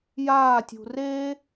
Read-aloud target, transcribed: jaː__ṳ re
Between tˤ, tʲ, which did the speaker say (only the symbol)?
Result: tʲ